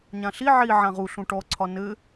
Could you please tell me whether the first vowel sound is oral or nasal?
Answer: nasal